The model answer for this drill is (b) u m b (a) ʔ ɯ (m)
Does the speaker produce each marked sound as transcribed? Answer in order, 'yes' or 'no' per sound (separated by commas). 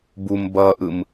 yes, no, yes